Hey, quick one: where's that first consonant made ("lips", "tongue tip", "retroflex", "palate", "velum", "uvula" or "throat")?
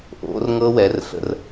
throat